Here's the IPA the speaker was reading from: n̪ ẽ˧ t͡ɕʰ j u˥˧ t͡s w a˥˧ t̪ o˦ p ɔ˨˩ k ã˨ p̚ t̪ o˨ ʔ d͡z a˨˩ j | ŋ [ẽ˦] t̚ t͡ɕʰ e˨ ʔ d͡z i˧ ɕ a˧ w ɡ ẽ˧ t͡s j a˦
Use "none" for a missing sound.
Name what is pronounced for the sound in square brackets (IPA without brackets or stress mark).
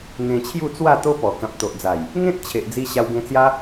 ẽ˦